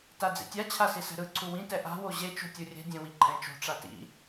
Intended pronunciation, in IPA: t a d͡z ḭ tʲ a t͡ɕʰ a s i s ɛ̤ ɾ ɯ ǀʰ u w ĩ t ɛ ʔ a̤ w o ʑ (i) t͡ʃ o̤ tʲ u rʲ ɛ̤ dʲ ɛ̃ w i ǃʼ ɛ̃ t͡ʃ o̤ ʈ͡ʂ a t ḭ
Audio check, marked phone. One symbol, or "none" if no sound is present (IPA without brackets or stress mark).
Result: e